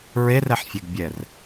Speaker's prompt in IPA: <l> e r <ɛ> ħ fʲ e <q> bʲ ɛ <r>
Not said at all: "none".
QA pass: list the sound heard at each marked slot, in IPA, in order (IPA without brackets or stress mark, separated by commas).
ɹ, ɛ, ɡ, r